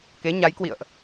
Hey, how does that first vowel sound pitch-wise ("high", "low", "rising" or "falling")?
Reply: rising